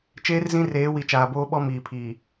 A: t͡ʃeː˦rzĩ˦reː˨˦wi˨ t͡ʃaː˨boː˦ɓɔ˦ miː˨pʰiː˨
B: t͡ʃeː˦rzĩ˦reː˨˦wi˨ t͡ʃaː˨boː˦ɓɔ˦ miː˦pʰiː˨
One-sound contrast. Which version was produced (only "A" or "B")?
A